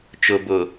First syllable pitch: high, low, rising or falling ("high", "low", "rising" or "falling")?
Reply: low